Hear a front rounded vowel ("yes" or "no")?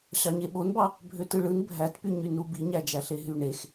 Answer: yes